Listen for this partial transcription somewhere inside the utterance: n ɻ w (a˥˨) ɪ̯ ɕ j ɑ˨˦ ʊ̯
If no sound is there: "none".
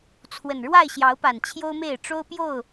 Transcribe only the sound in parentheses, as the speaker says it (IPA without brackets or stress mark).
a˥˨